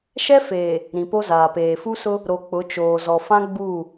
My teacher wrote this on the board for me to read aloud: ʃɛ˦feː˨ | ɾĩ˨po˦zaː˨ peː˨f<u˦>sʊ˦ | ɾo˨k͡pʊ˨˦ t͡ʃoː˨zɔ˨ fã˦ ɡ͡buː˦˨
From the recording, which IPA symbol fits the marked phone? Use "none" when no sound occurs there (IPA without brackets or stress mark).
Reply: u˦